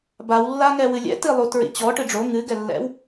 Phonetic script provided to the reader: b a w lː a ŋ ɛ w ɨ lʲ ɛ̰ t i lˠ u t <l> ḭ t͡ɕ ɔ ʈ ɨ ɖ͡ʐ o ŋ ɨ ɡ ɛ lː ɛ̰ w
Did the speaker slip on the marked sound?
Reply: yes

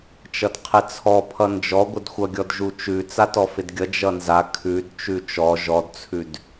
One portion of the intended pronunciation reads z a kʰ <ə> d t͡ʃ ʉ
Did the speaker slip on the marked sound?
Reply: yes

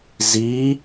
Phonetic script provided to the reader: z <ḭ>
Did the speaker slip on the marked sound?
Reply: yes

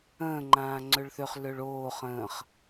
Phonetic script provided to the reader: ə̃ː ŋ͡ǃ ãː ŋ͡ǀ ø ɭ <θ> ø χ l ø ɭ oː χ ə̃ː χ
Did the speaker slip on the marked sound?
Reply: no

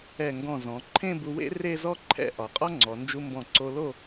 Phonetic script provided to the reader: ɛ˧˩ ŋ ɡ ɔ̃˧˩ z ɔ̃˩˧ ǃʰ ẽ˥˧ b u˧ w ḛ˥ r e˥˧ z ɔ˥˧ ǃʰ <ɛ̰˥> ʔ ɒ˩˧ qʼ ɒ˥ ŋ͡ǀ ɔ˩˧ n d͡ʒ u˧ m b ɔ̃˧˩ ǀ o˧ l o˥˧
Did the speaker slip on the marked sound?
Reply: yes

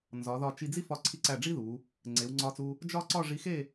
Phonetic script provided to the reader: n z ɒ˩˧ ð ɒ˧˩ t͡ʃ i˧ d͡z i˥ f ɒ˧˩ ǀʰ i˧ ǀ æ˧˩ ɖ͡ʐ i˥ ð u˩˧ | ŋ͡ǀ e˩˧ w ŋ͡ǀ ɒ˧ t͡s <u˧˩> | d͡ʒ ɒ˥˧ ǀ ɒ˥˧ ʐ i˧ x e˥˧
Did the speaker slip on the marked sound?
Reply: yes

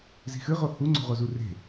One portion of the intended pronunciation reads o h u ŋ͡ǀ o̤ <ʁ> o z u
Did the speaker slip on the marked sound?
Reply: no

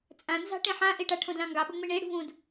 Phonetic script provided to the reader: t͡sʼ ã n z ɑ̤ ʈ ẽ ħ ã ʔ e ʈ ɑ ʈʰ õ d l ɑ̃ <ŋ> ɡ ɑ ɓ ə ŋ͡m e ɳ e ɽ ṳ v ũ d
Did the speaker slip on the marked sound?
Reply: no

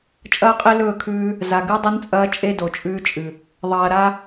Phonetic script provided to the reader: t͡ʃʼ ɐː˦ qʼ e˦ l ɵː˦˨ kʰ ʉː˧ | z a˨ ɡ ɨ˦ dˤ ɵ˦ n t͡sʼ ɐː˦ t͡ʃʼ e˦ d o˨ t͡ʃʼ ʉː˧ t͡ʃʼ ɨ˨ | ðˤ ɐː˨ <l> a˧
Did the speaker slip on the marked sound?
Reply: yes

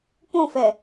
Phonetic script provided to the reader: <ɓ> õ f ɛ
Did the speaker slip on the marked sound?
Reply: yes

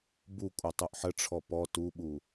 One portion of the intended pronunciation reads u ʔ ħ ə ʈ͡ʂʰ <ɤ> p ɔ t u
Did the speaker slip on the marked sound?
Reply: yes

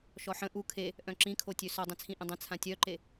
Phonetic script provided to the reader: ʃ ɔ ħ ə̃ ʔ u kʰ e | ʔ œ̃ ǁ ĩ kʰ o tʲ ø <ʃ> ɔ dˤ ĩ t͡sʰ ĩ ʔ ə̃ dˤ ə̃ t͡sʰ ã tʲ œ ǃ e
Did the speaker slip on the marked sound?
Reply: yes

